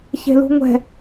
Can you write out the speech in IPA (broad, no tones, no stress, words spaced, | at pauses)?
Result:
çe̤lṳŋʷɛ̤